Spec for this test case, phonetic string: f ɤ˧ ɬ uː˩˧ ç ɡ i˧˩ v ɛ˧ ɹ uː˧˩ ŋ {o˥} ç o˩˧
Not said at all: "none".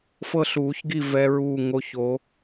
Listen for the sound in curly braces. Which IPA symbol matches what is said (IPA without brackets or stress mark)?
o˧˩